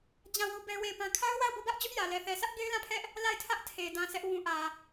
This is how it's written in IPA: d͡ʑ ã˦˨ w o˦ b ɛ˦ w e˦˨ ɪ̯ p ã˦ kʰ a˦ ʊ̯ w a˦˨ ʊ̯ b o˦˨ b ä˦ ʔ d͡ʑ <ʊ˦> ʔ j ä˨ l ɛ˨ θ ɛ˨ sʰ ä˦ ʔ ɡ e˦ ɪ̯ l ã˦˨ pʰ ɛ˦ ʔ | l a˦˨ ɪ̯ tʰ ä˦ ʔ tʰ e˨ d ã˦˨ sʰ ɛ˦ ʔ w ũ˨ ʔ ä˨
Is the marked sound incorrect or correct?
correct